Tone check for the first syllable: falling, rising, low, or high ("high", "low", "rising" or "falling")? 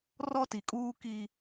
high